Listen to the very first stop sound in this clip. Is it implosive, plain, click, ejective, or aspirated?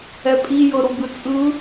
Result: ejective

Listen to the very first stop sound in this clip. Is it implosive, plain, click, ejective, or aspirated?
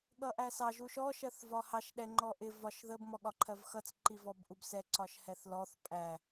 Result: implosive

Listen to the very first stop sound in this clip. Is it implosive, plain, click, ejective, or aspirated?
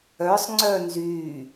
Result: click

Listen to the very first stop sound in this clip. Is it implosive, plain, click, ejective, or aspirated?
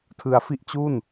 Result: aspirated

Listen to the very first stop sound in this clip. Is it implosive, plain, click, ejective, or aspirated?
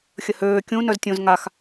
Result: plain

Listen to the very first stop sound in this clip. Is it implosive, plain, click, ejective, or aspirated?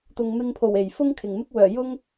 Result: plain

